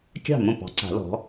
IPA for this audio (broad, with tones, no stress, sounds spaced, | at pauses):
kʲ ɑ̤˥˩ m õ˥˩ p ɑ̤˨˩˦ ǀ a̤˨˩˦ l ɔ̤˩˥